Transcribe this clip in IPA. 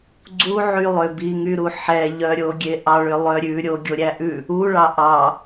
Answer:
ɡ͡ǀ u ʕ y lˠ ø b i ŋ y ɾ u ħ ɛ ʎ œ ɾʲ o ɡʲ e ʔ ɑ ɭ ø lˠ œ ɾʲ ʉ ɾʲ o ɡʲ o ɾʲ æ ʔ ʉ | u ɭ ɑ ʔ ɑ

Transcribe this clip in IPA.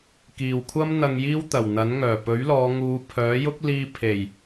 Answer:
k iː˨ w kʷʰ ɐ˥ m n̪ ɐ˧ ŋ j iː˥ w t̪ ɐ˨˩ w n̪ ɐ˨˥ n ŋ œː˨˩ p ɵ˨˥ ɥ l ɔː˨˧ ŋ uː˨˧ pʰ œː˨˥ j ʊ˥ k̚ l iː˧ pʰ e˨˩ j

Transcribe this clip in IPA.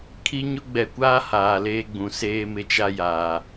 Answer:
kʰ i˦ ɲ ʊ˦ ɡ͡b ɛ˨ kʷ aː˦ h aː˨ l eː˦ ɡ͡b ũ˨ s eː˦ m ɪ˦ t͡ʃ a˦ j aː˨

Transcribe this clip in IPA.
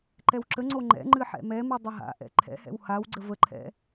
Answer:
ǃ ɛ w ǁ ə ŋ͡ǀ o ŋ͡ǃ ɛ̰ ŋ͡ǃ ɨ ħ ɛ̰ m ɛ m ɨ dˤ ə ɦ a̰ ʔ ɛ̰ ǃʰ ɛ̰ h ɛ̰ w h a w ɡ͡ǀ ə v ə ǃʰ ɛ̰

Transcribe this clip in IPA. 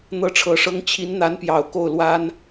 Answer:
n̪ ɤ˥ ʈ͡ʂʰ ɤ˧˥ ʂ ɤ˥ ŋ t͡ɕʰ i˧˥ n n̪ a˧˥ n p j ɑ˨˩ ʊ̯ k o˥˩ ʊ̯ l w a˥ n

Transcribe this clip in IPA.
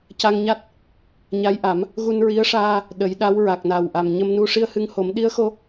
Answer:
c a˧ ŋ ɲ a˦˥ t̚ | ɲ a˧˥ j ʔ a˨˩˦ m | ɣ u˧ n ɹ i˧˥ ə̯ ʂ aː˧ | ɗ ə˨˩˦ j ɗ a˧˥ w ɹ a˨˩ k̚ n a˨˩ w ʔ a˨˩ m ɲ ə˧ m n u˧ ʂ i˧ ə̯ h ɨ˧ ŋ h o˨˩˦ m ɗ i˧˥ ə̯ x o˧

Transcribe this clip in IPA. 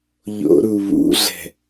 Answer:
ʎ o̰ ɾ u β ṵ ɮ ɛ̤

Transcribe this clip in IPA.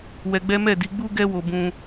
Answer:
w ɛ˧ ɡ͡b ɛ˦ m ɛ˦˨ d i˨˦ ɡ͡b u˦ ɡ ɛ˦ w o˦ b ũ˦

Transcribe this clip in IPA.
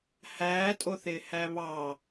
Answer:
h æː tʼ o θ ɪː h æ β ɑ

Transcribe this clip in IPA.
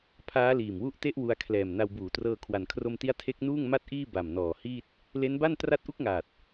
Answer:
pʰ aː˦˥ l iː˨˩ m w u˥˩ ʔ t e˥˩ ʔ w u˧ a̯ kʰ l ɛː˨˩ m n a˧ w b uː˩˦ t r ɤː˧ kʰ w a˩˦ n kʰ r o˧ m t i˦˥ a̯ tʰ e˦˥ k̚ n uː˥˩ ŋ m a˥˩ t̚ ʔ iː˥˩ b a˨˩ m n ɔː˨˩ h iː˥˩ t̚ | l e˦˥ n b a˥˩ n t r a˦˥ t̚ ʔ u˥˩ k̚ ŋ aː˨˩ t̚

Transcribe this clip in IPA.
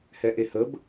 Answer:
h ɛ ʔ e h ə b

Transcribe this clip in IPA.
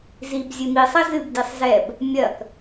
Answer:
z i b zʲ ɨ m i sˤ ɐ z ɨ b d i sˤ z ɛ b | mʲ ɐ k

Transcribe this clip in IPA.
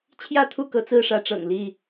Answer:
t͡ɕʰ j ä˥˨ t̪ʰ u˥˨ k ɤ˨˦ t͡s ɹ̩˦ ʂ ä˨˦ ʈ͡ʂ ɤ̰˨˩ ŋ l i˥˨

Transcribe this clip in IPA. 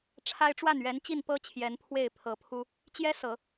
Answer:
ʈ͡ʂʰ a˥ ɪ̯ ʈ͡ʂ w a˥˩ n ɥ ɛ˧˥ n t͡ɕ i˥˩ n p ɤ˥ t͡ɕʰ j ɛ˧˥ n pʰ w e˥˩ ɪ̯ pʰ ɤ˧˥ pʰ u˥ | t͡ɕ j ɛ˥ s ɤ˨˩˦

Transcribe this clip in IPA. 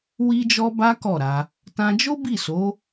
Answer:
w i˦ d͡ʒ ɔ˦ b a˦ k ɔ˦˨ ɾ a˧ | t ã˧ d͡ʒ o˦ b i˦˨ s o˨˦

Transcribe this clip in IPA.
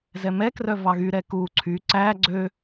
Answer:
z ɛ m ɛ k r œ v ɑ ɣ y ɾ ɛ k u ǀʰ y ǀ æ ɡ͡ǀ ø

